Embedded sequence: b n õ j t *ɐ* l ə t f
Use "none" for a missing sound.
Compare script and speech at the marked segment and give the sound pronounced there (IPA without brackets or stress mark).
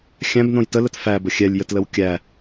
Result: ə